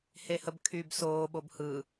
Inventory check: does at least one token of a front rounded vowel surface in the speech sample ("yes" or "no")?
yes